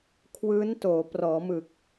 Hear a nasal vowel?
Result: no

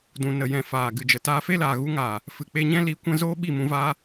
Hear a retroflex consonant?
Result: no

